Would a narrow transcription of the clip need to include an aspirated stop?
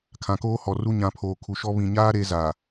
yes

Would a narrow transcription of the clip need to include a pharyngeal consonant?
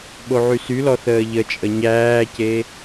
yes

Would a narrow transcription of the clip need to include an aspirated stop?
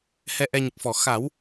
no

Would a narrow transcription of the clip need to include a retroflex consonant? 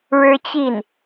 yes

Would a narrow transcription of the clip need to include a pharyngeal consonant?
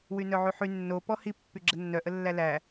yes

